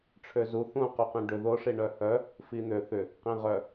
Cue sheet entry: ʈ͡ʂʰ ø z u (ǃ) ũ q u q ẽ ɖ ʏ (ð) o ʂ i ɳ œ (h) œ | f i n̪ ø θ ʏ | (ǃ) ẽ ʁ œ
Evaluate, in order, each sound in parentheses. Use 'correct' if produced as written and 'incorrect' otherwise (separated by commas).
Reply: incorrect, correct, correct, incorrect